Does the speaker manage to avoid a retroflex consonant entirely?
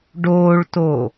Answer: no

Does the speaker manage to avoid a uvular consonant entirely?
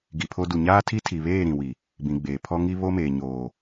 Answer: yes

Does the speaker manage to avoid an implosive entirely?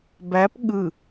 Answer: no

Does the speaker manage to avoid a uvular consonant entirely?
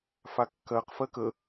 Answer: no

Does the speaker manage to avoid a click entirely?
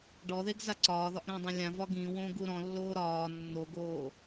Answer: no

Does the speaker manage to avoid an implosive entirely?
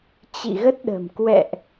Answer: no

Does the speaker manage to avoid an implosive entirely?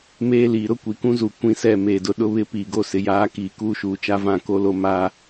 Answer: no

